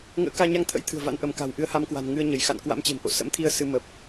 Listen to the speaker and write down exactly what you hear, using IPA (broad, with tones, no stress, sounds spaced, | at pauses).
ŋ ə̰ː˧˥ k aː˧ ɲ a˧ ŋ t̪ʰ ə̰˧˥ j t̪ʰ ɨ̤˨˩ ə̯ v a̰˧˥ n ʔ ə˧˩ m k a̤˨˩ w ʔ ɨ˨˦ ə̯ h a˨˦ m k w a̤˨˩ n ŋ ɨ˧ ə̯ ɲ ə˧˩ j x a̰˧˨ n k w a̰˧˥ m t͡ɕ e̤˨˩ m ʔ o̰˧˨ s ə̰˧˥ m t̪ʰ i˧ ə̯ s ɨ˧ m ə˨˩ p̚